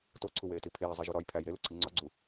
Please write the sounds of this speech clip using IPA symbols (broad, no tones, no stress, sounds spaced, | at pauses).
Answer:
t o ǀʰ u w eː t i pʰ eː zˤ e ʒ u ɾ ɒː j pʰ æ j ɾ e l u ǀʰ i ŋ͡ǀ ɒ ɡ͡ǀ u